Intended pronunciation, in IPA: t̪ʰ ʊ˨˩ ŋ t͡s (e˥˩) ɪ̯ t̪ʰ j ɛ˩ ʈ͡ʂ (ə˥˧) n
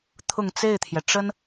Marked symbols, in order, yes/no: yes, no

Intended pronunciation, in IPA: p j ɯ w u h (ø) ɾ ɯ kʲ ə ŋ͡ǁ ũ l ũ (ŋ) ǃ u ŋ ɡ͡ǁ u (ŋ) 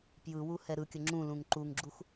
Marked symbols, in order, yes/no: no, yes, no

